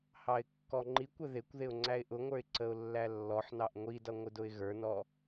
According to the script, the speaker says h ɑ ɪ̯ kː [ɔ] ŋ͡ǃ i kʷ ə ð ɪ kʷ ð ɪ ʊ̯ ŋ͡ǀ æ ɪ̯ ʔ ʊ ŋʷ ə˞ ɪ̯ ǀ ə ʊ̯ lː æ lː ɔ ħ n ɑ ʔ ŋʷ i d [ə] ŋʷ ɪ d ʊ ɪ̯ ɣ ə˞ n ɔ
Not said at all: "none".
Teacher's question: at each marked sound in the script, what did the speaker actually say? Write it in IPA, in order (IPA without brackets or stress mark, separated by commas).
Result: ɔ, ʌ